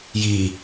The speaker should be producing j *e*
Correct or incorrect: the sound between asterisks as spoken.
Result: incorrect: i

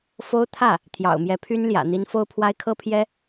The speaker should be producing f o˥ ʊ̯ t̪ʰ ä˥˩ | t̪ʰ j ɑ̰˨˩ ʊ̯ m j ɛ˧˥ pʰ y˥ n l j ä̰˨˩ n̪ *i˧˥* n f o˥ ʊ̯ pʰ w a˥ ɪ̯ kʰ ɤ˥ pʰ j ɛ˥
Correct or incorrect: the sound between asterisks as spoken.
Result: correct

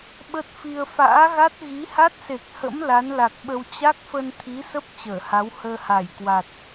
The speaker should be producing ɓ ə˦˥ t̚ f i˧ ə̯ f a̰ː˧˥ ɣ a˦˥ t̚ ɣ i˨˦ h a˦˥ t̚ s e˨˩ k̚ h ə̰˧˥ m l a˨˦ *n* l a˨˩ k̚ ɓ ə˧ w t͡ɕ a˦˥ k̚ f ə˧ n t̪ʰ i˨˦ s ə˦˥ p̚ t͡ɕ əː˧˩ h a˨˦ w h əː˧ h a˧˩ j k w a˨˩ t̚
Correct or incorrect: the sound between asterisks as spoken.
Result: correct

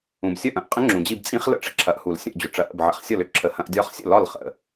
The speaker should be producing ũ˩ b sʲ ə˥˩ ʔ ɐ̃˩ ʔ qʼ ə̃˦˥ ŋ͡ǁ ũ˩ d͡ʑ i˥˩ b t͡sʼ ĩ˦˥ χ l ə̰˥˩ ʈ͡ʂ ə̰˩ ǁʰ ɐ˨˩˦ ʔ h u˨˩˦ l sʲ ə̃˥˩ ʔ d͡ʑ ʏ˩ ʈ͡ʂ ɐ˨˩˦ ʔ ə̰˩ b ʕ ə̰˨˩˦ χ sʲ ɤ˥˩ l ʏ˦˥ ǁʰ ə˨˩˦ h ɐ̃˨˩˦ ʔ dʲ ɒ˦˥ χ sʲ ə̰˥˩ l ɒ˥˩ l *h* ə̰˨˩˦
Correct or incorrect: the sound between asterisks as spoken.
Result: incorrect: χ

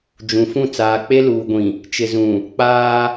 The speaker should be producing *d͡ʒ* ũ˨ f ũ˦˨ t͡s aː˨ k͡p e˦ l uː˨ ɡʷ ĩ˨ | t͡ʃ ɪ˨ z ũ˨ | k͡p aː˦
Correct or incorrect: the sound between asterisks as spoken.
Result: correct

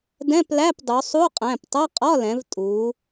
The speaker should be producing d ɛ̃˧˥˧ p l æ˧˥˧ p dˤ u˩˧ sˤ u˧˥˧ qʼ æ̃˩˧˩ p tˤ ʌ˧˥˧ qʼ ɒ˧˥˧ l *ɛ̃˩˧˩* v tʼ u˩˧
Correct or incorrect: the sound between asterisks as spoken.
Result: incorrect: ɛ̃˩˧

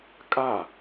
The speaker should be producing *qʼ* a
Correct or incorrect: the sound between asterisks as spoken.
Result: incorrect: kʼ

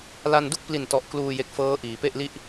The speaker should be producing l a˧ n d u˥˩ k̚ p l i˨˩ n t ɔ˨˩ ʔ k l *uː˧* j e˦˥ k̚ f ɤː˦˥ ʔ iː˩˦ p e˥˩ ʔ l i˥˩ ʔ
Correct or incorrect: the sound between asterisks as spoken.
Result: correct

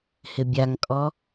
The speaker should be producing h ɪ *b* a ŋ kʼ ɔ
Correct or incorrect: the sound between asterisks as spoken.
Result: incorrect: bʲ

